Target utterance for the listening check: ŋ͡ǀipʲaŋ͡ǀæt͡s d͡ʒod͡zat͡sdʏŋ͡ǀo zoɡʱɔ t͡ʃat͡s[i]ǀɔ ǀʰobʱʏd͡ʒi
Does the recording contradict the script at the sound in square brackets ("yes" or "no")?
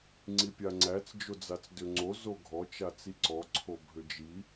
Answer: no